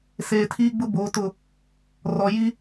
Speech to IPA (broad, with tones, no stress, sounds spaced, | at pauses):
s eː˨ tʰ iː˦ ɡ͡b ʊ˦ b oː˨˦ t ʊ˦˨ | r ɔ˨ j i˦